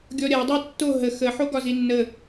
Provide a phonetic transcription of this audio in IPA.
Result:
ɡʲ ɔ ɾʲ a dˤ a tː o ɦ ə x ə ħ o ɡ ɒ z i nː ə

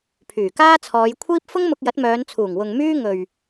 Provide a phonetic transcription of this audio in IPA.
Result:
pʰ yː˨˩ k aː˥ t͡sʰ ɔː˨˧ j kʷʰ iː˥ p̚ f ʊ˥ ŋ m ʊ˧ k̚ j ɐ˨˥ t̚ m œː˨˧ n t͡sʰ uː˨˩ ŋ w ʊ˨ ŋ m yː˥ ŋ ɵ˨ ɥ

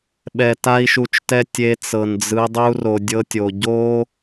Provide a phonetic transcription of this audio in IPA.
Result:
ɓ ɛ˨ t a˦ i̯ ʃ u˧ t͡ʃ t ɛ˦ tʲ e˧ t͡s ɤ˨ n d͡z ɯ˧ dˤ u˦ r o˧ dʲ ɤ˦ tʲ o˧ ɟ o˦

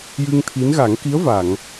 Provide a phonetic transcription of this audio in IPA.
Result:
j ɨ˧ ŋ t̪ʰ i˧˥ n ɣ a˨˩˦ ŋ k i˧˥ ə̯ v a˨˩˨ ŋ

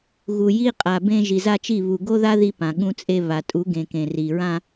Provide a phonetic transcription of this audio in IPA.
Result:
ɣ u˨ j i˦ qʼ a˨ b ẽ˦ ʒ i˨ z a˦ t͡ʃ i˦˨ β u˨ ɡ o˦ ð a˦ ð i˦ p ã˨ ɠ ũ˦ t͡sʼ e˦ β a˨ tʼ u˨˦ ɡ ẽ˨ k ẽ˨ r i˨ ɹ ã˦

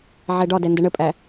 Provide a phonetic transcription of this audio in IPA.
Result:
ʕ ɛ ɖ ɒ d ɛ n d ə ɳ ə pʼ æ

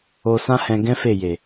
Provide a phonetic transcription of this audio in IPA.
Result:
o˧ s ã˦ h ɛ̃˧ ɡ ɛ̃˦ f e˦˨ j e˨

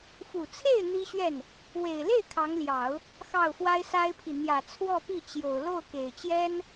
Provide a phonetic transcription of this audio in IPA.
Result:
f u˨˩ t͡sʰ e˥˩ ɪ̯ n̪ i˥ ɕ ɥ ɛ˥˩ n | w e˨˩ ɪ̯ l e˥˩ ɪ̯ kʰ ɑ˧˥ ŋ l j ɑ˨˩˦ ʊ̯ | x ɑ˥˩ ʊ̯ f w a˥ ɪ̯ s a˥ ɪ̯ pʰ i˨ n̪ j ä˨˩ t͡sʰ w ɔ˥˧ p i˥˩ t͡ɕ j o˨˩ ʊ̯ l o˥˩ ʊ̯ k e˨˩ ɪ̯ t͡ɕ j ɛ˥ n

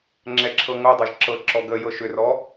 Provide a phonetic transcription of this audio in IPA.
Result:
ŋ͡ǁ ɛ ǁʰ ɤ ŋ o dˤ ɤ ʒ ǁ ɤ ǁ ɔ ɡ ə j ɤ ʃ ʏ r ɔ

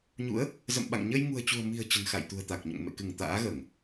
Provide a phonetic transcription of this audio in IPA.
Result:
ɲ ṵ˧˥ ə̯ | z ə̰˧˨ m ɓ a̰˧˨ ŋ ɲ ə˧ j ŋ ṳ˨˩ ə̯ t͡ɕ ṳ˨˩ ə̯ m i̤˨˩ ə̯ t͡ɕ ə̤˨˩ n x a̰˧˨ j t̪ ṳ˨˩ ə̯ t̪ a˨˩ k̚ ɲ o̰˧˨ ŋ m ḛ˧˨ k ɨ˧˩ ŋ t̪ a̰ː˧˥ ɣ əː˧˩˨ ŋ

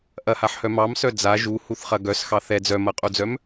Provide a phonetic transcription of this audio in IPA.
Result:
ʔ ɐ h a ħ h œ m ɑ m s œ d͡z a ʒ u h u θ χ ɐ ɡ œ s x ɑ θ ɛ d͡z œ m ɐ qʼ u d͡z œ m

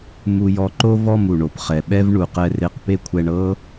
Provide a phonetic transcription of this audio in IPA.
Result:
m u˧ j ɔ˧ ǃ o˦ v ɔ˦˨ m u˨ ɳ o˨ p χ ɛ˨ ɓ ɛ˦ v ɳ u˨ q ɛ˧ r e˧ q p e˦ kʷʰ ɛ˧ ɳ ɤ˦

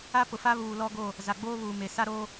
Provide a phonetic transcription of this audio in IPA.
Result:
a˦ p ʊ˨ f a˦ β uː˨ l ɔ˦ ɡ o˦˨ | z a˨ ɡ͡b oː˦ β uː˨ m e˨ s a˦ ɾ o˦

